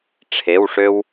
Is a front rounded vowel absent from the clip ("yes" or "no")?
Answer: no